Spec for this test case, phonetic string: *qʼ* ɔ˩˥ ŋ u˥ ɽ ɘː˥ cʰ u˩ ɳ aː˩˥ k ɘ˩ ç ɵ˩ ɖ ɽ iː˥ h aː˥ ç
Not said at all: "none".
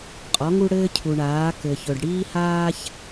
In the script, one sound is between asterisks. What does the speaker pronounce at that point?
qʼ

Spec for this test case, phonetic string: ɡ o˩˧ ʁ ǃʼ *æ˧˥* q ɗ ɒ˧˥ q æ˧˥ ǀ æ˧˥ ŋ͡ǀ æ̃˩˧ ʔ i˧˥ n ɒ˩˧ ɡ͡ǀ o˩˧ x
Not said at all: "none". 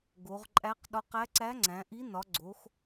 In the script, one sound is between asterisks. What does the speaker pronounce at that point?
æ˧˥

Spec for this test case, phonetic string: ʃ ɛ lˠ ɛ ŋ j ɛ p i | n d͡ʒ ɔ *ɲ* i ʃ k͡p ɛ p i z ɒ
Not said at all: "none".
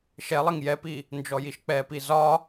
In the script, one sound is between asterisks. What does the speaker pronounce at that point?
j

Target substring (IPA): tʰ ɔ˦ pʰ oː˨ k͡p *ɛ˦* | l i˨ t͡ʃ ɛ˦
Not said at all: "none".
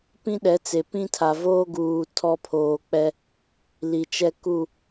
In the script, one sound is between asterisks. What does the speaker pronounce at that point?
ɛ˦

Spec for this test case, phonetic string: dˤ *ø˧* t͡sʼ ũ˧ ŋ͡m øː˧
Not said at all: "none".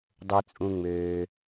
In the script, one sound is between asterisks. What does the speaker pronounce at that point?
ø˧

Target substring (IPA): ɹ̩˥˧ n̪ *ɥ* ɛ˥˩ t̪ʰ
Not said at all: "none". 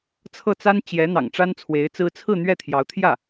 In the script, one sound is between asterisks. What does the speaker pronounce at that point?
ɥ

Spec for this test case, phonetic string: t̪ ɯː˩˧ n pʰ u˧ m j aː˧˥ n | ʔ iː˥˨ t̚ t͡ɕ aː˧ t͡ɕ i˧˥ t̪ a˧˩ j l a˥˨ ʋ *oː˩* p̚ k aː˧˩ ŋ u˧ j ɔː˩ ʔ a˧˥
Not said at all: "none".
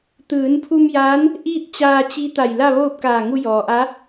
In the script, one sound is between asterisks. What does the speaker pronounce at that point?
oː˥˨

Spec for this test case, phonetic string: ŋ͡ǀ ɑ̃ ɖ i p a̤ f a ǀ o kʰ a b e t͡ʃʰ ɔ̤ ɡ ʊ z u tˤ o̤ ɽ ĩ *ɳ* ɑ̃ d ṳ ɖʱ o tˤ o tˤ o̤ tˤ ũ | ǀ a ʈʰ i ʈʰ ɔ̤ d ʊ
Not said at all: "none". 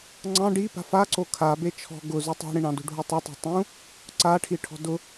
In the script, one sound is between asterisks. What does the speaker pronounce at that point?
ɳ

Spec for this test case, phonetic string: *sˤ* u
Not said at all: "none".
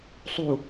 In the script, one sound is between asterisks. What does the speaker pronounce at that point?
sˤ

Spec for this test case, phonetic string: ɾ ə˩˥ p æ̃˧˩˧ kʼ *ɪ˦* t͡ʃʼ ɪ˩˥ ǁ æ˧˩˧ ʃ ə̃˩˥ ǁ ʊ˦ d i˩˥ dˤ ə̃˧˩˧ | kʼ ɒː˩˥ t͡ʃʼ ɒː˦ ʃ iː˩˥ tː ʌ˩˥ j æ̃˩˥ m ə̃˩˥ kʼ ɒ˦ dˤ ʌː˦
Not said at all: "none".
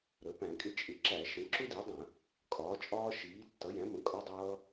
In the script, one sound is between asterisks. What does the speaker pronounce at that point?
ɪ˦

